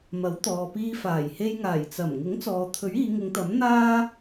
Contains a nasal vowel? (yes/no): no